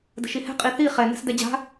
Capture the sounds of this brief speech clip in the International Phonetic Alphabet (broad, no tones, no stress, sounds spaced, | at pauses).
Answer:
d ə̤ ʃ i h ɛ̤ qʼ i θ i χ ɛ n ɛ̤ s d ɛ d͡ʑ a̤